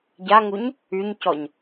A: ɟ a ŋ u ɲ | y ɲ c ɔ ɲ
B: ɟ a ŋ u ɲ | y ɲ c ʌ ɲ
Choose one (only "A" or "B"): A